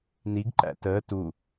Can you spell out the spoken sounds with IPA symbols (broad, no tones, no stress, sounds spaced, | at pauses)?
n i ɡ ǃ æ̰ t əː t u